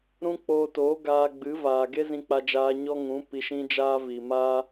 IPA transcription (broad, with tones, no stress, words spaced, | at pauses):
ɾũ˦k͡poː˧ toː˨˦ɡaː˧ɡ͡bɨ˨˦vaː˨ ɡe˦zĩ˧k͡pa˧d͡ʒaː˧ ɲɔ˦ŋũ˨˦ pi˧ʃĩ˦d͡ʒaː˦ vi˨maː˦